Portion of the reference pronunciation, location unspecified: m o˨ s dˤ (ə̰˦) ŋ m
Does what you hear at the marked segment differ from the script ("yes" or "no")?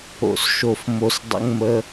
yes